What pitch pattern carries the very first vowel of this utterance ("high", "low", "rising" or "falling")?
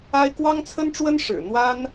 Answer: high